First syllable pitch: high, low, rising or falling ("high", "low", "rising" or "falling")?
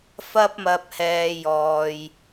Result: high